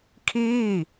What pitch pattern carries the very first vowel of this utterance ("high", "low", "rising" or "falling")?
falling